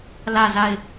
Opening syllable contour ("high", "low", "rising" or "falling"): falling